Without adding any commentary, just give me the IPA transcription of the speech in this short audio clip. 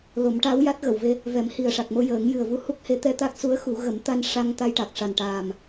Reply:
l o˨˩˦ m ʈ a˧˥ w j a˦˥ t̚ ɣ ə˨˩˨ w v e˧ | v ɛ˨˩˦ m h i˨˩ ə̯ ʂ a˨˩ k̚ m o˧ j əː˨˩˦ ŋ j ɨ˨˩ ə̯ v u˧˥ h u˦˥ k̚ h e˧˥ t̪ ɛ˧ t̪ a˦˥ k̚ s u˧˥ ə̯ x u˨˩˦ ɣ ə˨˩˦ m t̪ a˧ n ʂ a˧ ŋ t̪ a˧ j ʈ a˨˩ k̚ ʂ a˨˩ n ʈ aː˨˩ m

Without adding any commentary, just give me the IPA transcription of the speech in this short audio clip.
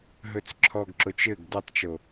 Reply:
ɦ ɵ t͡s ǁʰ ɔ ɡ ǁ o t͡ʃ ɘ ɡ d ɵ tˤ t͡ʃ o

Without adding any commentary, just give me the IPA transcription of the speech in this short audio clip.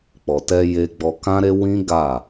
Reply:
k͡p ɔ˨ t ɛ˧ j e˧ ɡ͡b ɔ˧ k ã˦ ɾ e˧ w ĩ˦ ɡ a˦˨

